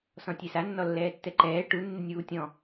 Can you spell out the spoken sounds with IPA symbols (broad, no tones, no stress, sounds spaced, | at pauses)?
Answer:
s ɔ̃ tʲ e s a nː ɔ lː ɛː tː ɛ ǃ ɛː ʈ u nː ɪ nʲ uː tʲ ɔ̃